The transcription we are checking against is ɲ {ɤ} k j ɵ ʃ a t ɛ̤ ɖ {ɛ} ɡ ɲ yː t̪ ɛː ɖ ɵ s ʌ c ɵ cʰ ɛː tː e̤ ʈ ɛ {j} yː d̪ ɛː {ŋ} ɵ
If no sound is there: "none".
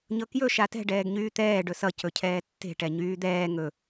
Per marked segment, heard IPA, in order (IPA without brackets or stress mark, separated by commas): ɤ, ɛː, ɲ, ŋ